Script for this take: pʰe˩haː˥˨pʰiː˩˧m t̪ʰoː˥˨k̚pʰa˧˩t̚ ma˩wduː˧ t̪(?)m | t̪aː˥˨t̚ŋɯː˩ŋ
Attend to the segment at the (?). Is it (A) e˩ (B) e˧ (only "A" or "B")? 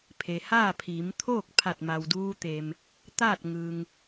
A